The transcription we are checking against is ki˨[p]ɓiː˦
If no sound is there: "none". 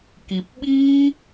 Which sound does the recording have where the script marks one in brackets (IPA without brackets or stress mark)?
p